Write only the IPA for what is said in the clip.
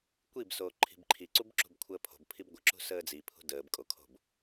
kʷ i b s oː ǃʰ i̤ b ǃʰ i ǀ u b ǁ ṳ b kʷʰ əː pʰ o̤ b pʰ i b ɡʷ ə ǁ ṳ s əː d͡z i pʰ ṳ d əː b kʼ o kʰ o̤ b

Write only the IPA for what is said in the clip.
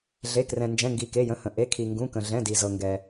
ɮ e˩˧˩ k r ɛ̃˩ n d͡ʒ ɛ̃˩˧˩ ŋ ɡ i˩ k e˩˧˩ j ə̃˩˧˩ h ə̃˩ ʔ e˩˧˩ kʰ i˩ ŋ ɡ ũ˩˧˩ k ə̃˩ ɮ ɛ̃˩˧˩ d i˩ z ɤ˩ ŋ ɡ ɛ˩

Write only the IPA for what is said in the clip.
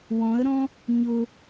w ɔ̃ ə̯ ɾ ɔ̃ | ɲ ʊ

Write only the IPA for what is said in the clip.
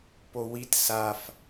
p o w i t s a f

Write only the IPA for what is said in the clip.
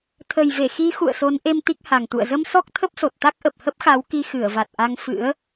t̪ʰ ə˨˩ j v e˧˩ x i˨˦ x ṵ˧˨ ə̯ s o˨˦ n ʔ e˧ m t̪ i˦˥ k̚ h a˨˩ ŋ t̪ ṵ˧˨ ə̯ z ə˧ m s ɔ˦˥ k̚ t̪ʰ ə˦˥ p̚ s o˨˩ t̚ t̪ a˦˥ k̚ ʔ ə˨˩ p̚ h ə˦˥ p̚ x a˨˦ w k i˧ x ɨ˧˩ ə̯ v a˨˩ t̚ ʔ a˧ ŋ f ɨ̰˧˥ ə̯

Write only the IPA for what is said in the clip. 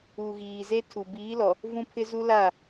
u˨ ɣ iː˨ z e˦ tʰ u˨ b iː˨˦ l ɔ˨ | v ũ˦ pʰ ɪ˦ z u˦ l a˦˨

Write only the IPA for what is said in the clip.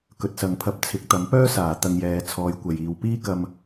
k ɵ˨ t̚ s ɐ˨˧ ŋ pʰ ɐ˧ p̚ t͡sʰ ɪ˨˥ k̚ t̪ ɐ˨˥ m p œː˥ s aː˨˩ t̪ ɐ˧ ŋ j ɛː˨˧ t͡sʰ ɔː˨˧ j kʷ ɐ˨ j iː˨ w p iː˥ k ɐ˧ m

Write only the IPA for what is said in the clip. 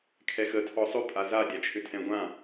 kʰ ɛ x ə tʰ ɔ sˤ ʏ pʼ a z a dʲ a t͡ʃʰ ʏ tʰ ɛ̃ ɡʷ ã

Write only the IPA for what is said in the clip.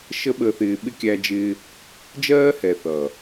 ʃ ə˦ ɓ əː˧ θ ɪː˧ ɓ ɪ˦ kʲ æ˦ d͡ʒ ɪː˦ | d͡ʒ ɜː˦ h ɛ˨ θ ʌ˨

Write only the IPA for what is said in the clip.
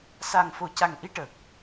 s a˨˩ ŋ f o˨˩ c a˨˩ ŋ ʔ i˧ ʈ ə˨˩ k̚

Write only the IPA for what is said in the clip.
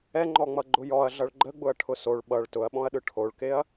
ɛ ŋ͡ǃ ɔ ŋ͡m ʌ ɡ͡ǃ ʊ j ɔ ɐ̯ ɮ ʌ ɭ ɡ͡ǃ ə ɡ͡b ʊ ɐ̯ ʈʰ ʊ s o ɭ ɓ ʌ ɭ t ʊ ɐ̯ ɓ ɔ̃ ɐ̯ ɗ ɯ ʈʰ o ɭ k e ɐ̯

